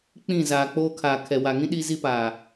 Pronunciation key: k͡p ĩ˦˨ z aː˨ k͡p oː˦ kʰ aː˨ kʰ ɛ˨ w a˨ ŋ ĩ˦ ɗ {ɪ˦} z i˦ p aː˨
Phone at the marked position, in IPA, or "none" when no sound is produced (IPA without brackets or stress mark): i˦